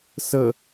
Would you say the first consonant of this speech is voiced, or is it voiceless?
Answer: voiceless